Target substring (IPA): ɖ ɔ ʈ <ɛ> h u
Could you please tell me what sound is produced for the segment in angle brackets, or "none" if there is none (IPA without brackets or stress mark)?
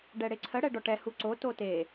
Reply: ɛ